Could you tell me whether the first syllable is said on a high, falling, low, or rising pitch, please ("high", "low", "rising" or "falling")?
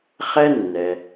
high